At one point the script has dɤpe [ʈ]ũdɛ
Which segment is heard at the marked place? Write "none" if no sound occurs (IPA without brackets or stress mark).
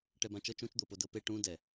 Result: ʈ